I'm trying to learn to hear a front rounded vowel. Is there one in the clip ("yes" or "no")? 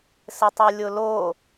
yes